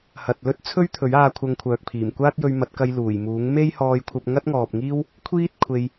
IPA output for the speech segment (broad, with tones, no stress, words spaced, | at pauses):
hɐ˨t̚lɵ˥t̚ t͡sʰɵ˥ɥt̪ʰɵ˨˥ɥaː˧ kʷʰɐ˧ŋkʷʰœː˨k̚pʰiː˨˩m kʷaː˥t̚jɵ˧ɥmɐ˨˥t̚kɐ˧j luː˨˩jmuː˨˥ŋ me˥jhɔː˧jkʷʰɐ˧p̚ ŋɐ˥t̚ŋɔː˨p̚ ŋiː˥w | kʷʰiː˥t̚ kʷʰe˧j